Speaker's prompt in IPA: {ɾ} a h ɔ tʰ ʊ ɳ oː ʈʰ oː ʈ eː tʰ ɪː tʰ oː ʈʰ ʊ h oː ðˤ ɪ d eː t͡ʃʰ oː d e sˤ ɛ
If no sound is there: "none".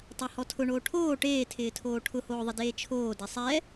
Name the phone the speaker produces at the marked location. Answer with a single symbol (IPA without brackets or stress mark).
tˤ